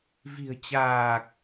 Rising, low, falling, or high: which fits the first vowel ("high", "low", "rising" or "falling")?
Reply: low